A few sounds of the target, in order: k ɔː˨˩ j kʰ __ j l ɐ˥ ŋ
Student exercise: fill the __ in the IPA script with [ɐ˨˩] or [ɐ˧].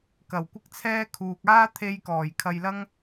ɐ˧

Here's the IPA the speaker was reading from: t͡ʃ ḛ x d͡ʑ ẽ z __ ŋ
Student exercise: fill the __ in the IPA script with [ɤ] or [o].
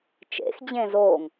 o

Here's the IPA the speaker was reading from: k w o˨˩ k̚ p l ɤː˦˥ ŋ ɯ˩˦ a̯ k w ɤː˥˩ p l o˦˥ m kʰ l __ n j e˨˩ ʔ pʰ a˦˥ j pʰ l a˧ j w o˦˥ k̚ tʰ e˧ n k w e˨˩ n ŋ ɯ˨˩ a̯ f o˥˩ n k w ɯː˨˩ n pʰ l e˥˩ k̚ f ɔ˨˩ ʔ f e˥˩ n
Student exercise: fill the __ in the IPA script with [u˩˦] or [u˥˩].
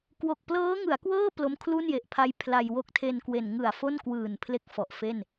u˥˩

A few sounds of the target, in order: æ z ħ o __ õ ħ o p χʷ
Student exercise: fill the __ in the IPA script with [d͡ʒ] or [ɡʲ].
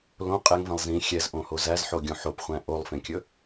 ɡʲ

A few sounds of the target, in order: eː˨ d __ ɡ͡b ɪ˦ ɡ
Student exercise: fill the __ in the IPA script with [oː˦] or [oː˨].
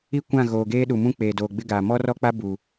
oː˨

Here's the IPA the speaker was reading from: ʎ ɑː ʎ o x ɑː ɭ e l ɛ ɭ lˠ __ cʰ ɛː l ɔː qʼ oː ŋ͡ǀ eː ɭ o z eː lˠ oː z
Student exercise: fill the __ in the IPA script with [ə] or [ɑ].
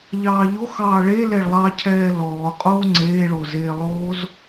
ɑ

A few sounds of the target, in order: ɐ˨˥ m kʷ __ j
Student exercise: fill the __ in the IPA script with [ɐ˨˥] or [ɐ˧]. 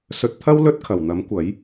ɐ˨˥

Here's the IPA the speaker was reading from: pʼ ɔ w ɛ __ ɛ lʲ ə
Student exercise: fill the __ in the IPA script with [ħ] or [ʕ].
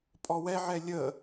ʕ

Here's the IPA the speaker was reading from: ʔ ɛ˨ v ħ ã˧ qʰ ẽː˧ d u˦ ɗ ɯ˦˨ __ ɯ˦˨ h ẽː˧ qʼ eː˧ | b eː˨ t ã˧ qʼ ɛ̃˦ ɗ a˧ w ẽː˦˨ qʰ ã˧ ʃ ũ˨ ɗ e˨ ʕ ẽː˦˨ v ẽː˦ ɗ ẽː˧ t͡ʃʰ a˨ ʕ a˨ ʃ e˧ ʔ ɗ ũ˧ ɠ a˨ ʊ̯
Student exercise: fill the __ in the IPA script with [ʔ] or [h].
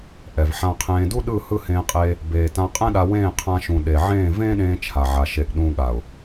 h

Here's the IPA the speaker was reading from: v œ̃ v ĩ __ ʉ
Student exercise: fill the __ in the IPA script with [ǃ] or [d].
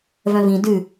d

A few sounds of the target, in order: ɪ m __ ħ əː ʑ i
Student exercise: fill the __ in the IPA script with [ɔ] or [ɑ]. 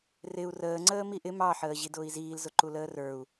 ɑ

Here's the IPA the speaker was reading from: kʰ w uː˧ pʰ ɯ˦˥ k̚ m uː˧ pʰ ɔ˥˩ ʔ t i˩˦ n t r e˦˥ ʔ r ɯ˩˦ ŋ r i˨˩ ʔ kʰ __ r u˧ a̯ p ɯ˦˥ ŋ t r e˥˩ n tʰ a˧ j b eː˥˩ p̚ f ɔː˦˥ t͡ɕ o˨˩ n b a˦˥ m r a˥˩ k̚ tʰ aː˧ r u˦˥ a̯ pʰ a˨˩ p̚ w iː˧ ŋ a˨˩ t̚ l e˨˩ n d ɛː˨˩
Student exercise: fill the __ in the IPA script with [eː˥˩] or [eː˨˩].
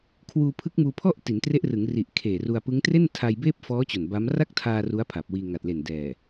eː˨˩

